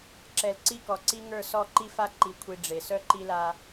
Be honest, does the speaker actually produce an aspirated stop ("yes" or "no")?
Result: yes